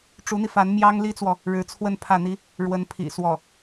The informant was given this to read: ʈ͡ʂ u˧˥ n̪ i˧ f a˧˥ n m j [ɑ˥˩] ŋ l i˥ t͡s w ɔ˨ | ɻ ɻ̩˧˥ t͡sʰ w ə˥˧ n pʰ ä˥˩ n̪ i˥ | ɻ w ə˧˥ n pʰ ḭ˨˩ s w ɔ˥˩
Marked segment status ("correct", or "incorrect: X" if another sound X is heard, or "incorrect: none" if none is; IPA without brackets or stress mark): incorrect: ɑ˥